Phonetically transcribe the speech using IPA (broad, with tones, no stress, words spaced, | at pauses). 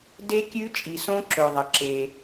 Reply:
de˦˥kʲʉ˦˥t͡ʃʼi˩sõ˦˥ ǁɵ˩ðˤɐ˩ǁe˩